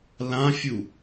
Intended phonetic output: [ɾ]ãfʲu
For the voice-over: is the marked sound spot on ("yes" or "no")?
no